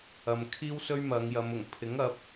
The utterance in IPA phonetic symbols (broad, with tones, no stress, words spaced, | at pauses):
ɐ˨mkʰiː˥wsɵ˥ɥ mɐ˨˧ŋjɐ˨˧m ʊ˨˩ŋ pʰɪ˨˥ŋɐ˨˥p̚